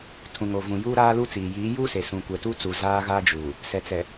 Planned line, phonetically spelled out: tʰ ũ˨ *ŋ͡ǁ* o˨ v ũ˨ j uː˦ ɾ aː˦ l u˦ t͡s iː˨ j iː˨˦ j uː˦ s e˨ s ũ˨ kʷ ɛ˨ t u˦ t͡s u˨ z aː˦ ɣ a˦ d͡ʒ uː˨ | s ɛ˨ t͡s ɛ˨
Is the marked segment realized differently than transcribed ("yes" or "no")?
yes